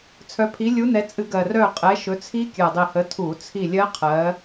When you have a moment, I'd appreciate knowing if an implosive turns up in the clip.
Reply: no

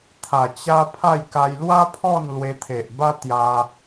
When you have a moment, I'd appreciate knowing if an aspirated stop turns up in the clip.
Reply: yes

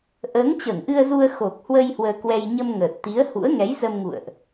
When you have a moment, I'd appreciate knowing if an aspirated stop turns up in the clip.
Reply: no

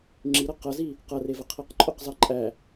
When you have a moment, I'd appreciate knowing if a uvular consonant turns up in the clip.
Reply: yes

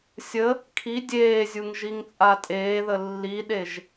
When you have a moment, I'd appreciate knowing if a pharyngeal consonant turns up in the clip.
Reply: no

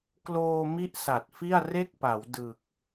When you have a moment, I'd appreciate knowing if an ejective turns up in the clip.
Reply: no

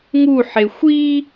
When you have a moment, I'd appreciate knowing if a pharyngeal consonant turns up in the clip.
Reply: yes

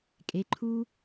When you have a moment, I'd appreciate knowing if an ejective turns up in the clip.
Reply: yes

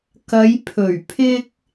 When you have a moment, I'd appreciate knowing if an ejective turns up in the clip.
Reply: no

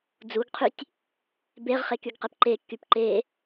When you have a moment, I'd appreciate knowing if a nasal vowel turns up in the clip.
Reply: no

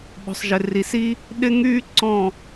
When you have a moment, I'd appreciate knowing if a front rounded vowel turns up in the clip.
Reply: yes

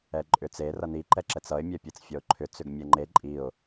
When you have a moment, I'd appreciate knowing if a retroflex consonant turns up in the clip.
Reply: no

